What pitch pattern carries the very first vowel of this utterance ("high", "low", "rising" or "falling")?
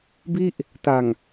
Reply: falling